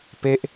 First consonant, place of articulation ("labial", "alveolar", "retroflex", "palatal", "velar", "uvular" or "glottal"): labial